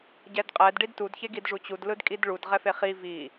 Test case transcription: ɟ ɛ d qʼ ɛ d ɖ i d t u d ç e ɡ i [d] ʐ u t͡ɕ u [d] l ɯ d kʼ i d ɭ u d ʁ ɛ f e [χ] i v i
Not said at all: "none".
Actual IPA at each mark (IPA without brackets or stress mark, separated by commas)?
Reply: d, d, χ